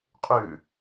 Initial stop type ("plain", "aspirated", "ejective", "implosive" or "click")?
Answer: ejective